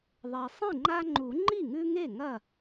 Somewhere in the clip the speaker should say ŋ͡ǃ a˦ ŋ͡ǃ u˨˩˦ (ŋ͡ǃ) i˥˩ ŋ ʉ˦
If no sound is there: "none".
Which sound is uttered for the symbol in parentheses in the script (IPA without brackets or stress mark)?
ŋ͡ǃ